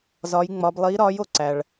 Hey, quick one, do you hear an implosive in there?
no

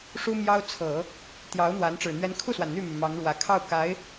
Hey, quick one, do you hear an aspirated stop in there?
yes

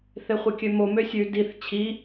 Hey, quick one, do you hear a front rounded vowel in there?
yes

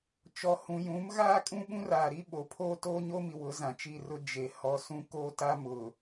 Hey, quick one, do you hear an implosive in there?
yes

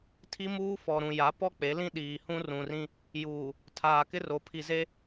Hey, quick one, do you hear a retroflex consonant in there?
no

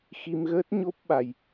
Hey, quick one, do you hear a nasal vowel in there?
no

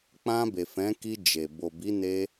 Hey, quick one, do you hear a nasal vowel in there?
yes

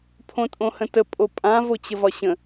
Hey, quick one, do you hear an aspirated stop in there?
yes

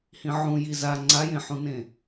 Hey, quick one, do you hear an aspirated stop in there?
no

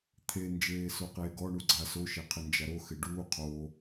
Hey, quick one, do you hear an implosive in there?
no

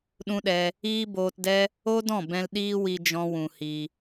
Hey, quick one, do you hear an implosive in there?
yes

